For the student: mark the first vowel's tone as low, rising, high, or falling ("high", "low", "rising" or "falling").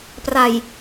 low